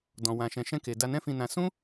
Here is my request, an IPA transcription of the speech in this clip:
d ɔ̃˨ w ã˨ ʃ ɛ̃˨ ʃ ɛ̃˧ k e˨ d a˧ n ɛ̃˦ f ĩ˧ n ã˧ s ũ˦

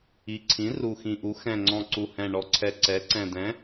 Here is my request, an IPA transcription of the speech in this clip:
i˨˩ ǀʰ ĩ˩˥ r u˨˩ x ĩ˨˩ ʔ u˩˥ x ɛ̃˨˩ ŋ͡ǀ ɔ̃˨˩ ǀ u˨˩ h ɛ̃˨˩ ɳ ɔ˨˩ ǀʰ ɛ˨˩ ǀ ɛ˩˥ ǀ ɛ̃˨˩ d ɛ̃˩˥

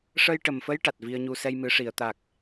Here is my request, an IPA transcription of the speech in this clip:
ʂ ə˧ j ʈ ə˨˩ m f ə˧˥ j ʈ a˨˩ t̚ v i˧ ə̯ ɲ u˧ s ɛ˧ j m ɨ˨˩˦ ʂ i˨˩˨ ə̯ t̪ a˨˩ k̚

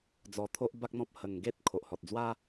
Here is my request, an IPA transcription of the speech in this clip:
d͡z ɔ˧ t̪ʰ o˦ ʔ b a˦ k̚ n̪ ɔ̃˦ p̚ h ə˧ ŋ ɡ e˦ t̚ kʰ o˨ ʔ h ɔ˨ t̚ d͡z w a˦

